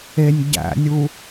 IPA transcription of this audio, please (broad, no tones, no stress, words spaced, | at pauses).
enʲ ɟæ̰nʲu